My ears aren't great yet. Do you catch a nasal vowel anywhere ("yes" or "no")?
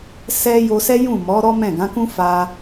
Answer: yes